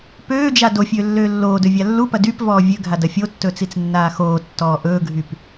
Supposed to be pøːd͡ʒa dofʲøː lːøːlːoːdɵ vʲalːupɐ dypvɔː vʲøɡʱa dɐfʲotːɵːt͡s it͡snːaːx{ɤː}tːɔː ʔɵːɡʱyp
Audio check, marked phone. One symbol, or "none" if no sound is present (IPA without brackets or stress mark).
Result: oː